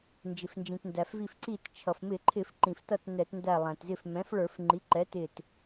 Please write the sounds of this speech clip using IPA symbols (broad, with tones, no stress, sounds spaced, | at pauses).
n d͡ʒ ɪ˩ f n d͡ʒ ĩ˩ t n d æ˩ f v i˧˩ f ǀ i˧˩ t t͡ʃʰ ʌ˩ f m ɪ˧˩˧ ǃʰ ɪ˧˩˧ f ǃ ĩ˩ f t ʌ˧˩ t n ɛ˧˩˧ t n d æ˧˩ lˠ æ̃˩ t z ɪ˧˩ f m ɛ̃˩˥ f ɭ ə˞˧˩˧ f ŋ͡ǃ i˩˥ ǃ ɛ˩˥ t ɪ˧˩ t